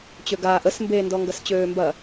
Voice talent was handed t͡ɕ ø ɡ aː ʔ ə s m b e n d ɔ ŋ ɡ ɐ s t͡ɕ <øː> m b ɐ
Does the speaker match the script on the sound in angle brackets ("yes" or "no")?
yes